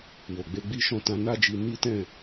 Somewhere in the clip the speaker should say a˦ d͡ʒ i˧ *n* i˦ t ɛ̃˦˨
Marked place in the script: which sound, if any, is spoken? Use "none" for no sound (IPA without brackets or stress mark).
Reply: n